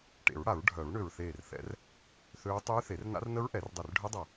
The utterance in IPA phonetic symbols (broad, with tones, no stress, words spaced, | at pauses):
ʈḛ˨˩˦ɹɽa˨˩˦ɹ ɖʱœ˨˩˦ɹɳø˧˩ɹθeː˧˩rθɛ̰˨˩˦r | θø˦˥ɹ tˤyː˦˥θe˨˩˦rna̰˦˥r nə˦˥ɹʔɛ˨˩˦rdˤe˧˩r ɖʱœ˦˥dˤa˧˩